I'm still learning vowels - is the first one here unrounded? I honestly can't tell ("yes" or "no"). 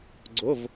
no